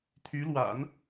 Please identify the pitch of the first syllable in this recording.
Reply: rising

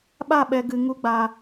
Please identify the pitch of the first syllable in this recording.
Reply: falling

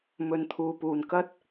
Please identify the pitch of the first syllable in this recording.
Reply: low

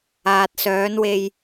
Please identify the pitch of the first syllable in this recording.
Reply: low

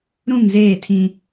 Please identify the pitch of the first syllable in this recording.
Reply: falling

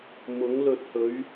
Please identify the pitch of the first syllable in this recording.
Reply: rising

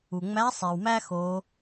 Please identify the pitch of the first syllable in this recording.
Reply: low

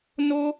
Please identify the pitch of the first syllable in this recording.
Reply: high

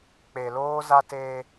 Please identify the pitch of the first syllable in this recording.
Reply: low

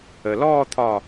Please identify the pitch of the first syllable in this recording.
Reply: low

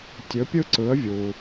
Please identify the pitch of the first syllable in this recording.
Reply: rising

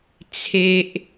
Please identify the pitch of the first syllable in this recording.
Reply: low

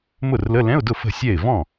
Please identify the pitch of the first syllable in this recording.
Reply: falling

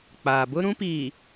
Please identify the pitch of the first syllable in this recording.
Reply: low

